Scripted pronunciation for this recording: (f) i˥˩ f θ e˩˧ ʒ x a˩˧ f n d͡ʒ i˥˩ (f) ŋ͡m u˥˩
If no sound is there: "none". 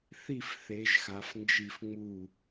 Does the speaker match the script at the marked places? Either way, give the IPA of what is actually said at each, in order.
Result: θ, f

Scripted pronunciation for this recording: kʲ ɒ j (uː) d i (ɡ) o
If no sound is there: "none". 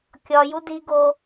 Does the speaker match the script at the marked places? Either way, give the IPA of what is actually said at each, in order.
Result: u, ɡ

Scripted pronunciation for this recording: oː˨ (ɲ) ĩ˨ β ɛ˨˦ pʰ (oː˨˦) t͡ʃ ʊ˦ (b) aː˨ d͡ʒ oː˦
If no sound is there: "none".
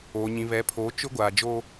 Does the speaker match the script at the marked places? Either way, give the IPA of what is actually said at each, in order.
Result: ɲ, oː˨˦, ɡʷ

